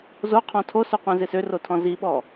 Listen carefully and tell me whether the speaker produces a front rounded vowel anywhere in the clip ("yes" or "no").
yes